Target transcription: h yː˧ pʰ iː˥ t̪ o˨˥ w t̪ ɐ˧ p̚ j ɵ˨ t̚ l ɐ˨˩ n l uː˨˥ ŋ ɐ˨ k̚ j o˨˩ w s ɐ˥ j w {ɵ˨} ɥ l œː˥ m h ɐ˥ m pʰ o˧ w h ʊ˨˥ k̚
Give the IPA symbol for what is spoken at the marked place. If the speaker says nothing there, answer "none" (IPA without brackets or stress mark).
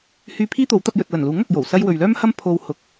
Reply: ɵ˨